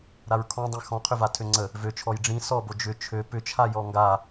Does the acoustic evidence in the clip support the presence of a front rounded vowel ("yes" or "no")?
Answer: yes